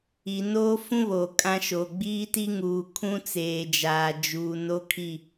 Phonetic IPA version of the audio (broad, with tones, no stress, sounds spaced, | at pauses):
i˨ n oː˦ f ũ˦ β oː˨ kʼ ã˦ ʃ oː˨ ɡ͡b iː˦ t i˦ ŋ uː˨ kʰ ũ˦ t͡s eː˨ d͡ʒ aː˨ d͡ʒ uː˨ n o˦ kʰ i˦˨